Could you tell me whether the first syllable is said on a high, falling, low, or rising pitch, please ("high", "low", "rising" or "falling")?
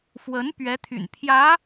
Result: rising